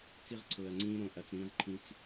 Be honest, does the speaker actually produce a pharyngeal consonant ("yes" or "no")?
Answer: no